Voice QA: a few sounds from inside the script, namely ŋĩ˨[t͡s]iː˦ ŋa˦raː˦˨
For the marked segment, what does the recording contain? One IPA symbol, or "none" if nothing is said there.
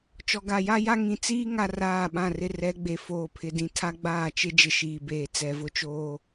t͡s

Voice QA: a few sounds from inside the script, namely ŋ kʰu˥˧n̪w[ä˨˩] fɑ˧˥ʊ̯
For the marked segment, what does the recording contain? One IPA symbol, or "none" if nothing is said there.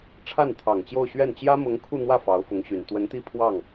ä˥˩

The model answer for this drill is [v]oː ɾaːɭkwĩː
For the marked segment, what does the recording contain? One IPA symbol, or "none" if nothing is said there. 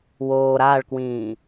w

